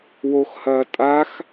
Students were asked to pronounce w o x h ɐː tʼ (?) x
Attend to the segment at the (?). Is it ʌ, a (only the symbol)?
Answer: a